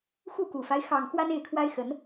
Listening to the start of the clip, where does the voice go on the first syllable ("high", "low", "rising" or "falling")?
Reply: falling